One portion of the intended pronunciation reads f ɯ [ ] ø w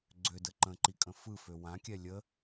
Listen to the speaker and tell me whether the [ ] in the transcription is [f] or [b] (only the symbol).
f